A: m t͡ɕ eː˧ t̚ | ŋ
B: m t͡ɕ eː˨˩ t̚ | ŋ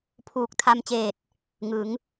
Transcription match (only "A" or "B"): B